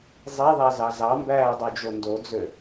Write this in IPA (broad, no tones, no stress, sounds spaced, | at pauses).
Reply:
zˤ e ðˤ æ z ɑ z ɑ m b æː dˤ u d͡ʒ o n d o d͡z ø